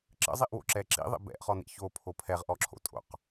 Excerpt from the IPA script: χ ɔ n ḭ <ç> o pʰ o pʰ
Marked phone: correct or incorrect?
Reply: correct